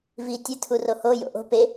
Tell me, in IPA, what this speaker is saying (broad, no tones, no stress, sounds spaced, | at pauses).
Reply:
v iː tʲ ɨ tʰ u r o h o j o̰ ʔ o̤ p e